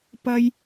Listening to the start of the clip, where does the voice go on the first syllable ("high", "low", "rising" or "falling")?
high